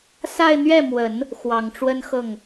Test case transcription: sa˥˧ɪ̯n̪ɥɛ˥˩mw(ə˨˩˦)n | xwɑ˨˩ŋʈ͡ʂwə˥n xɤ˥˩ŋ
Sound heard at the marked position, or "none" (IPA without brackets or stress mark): ə˨˩˦